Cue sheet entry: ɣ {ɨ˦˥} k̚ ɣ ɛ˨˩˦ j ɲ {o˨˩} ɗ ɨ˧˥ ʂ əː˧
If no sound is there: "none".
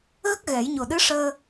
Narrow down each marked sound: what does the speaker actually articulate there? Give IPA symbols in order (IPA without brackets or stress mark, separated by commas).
ə˦˥, o˨˩